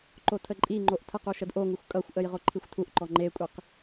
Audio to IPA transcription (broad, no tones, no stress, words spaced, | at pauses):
ǃotʰəǃʼiŋ͡ǃoʔ tʰəqu ʃədʔoŋuxʷ kʼʌxʷʔəj ʁoǃʰixʷtʰuʔǃɔ ŋ͡ǃekʷʼiq